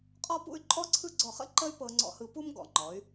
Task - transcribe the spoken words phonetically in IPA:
qʼ ɔ˥˧ p ṵ˥˧ y̯ ǃʼ ɔ˥ ǀʰ ɯ˥˧ ɡ͡ǀ ɔ˧˩ χ ə̰˥ ǃ ə˥ y̯ p ɤ˧ ŋ͡ǀ ɔ̰˧ h ɯ˧ p u˥ m ɡ ɔ̰˩˧ ŋ͡ǃ ɔ˩˧ y̯

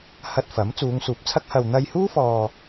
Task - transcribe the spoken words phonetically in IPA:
h ɐ˧ t̚ f ɐ˨˥ m t͡s uː˨˧ ŋ s uː˨˥ p̚ t͡sʰ ɐ˥ k̚ h ɐ˨ w n̪ ɐ˧ j h uː˥ f ɔː˧

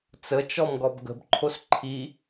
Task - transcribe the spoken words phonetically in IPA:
t͡s ə t͡ʃ ɔ m ɡ ɔ b ɡ ə̤ b ǃʰ o s ǃʰ i

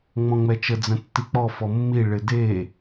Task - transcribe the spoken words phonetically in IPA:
ŋ͡m ɔ̃ ŋ͡m ɛ t͡ʃ ə d͡z ə̃ tː i k͡p ɔ f ɔ mː i ɭ ɪ d e

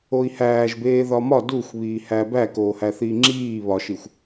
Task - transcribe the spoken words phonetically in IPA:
o i̯ h æː ʒ b eː ð ɒ m ɒ d u xʷ β iː h æ b æ k oː h æ θ iː ŋ͡ǁ iː β ɒ ʃ i xʷ

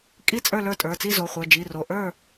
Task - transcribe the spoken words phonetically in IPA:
kʼ i˥˨ t͡sʼ ə˞˥˨ l ə˞˥˨ tʼ ə˞˩˧˩ t͡s i˥˨ z o˩˧˩ χʷ ə˞˩˧˩ d͡ʒ i˩˧˩ r o˩˧˩ ʔ ə˞˥˨

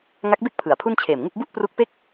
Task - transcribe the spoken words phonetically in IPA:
ŋ a˦˥ k̚ b e˥˩ k̚ pʰ ɯ˨˩ a̯ pʰ u˥˩ n t͡ɕʰ eː˨˩ m ŋ u˥˩ k̚ b u˥˩ ʔ p r u˦˥ k̚ p e˥˩ k̚

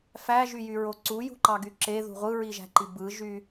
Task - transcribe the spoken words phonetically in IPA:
f æ ʒ y j y ɹ o ǀ u j ṳ ǃ ɑ ɡ y ǁ e ð ṳ ʁʷ ɯ ɹ i ʒ æ̤ ǃ i b ɯ ʒ y

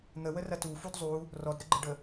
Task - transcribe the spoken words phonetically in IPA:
n̪ ə w ə r ɐ t u f u d zˤ u | r ɔ d ɾ ə ɡ͡ǃ ə ɖ ə

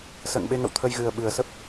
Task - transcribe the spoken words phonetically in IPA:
s ə̰ː˧˨ ŋ ɓ e˧ ŋ ə̰˧˨ w t̪ʰ ə˧ j ɣ ɨ˨˩ ə̯ ɓ ɨ˨˩ ə̯ s ə˦˥ p̚

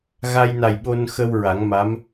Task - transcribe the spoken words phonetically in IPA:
ɣ a˧ j n a˨˩ j ɓ o˧ n x ə˧ w ɹ a˨˩˦ ŋ m a˧˥ m

